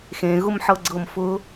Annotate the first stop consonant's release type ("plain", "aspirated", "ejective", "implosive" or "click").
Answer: click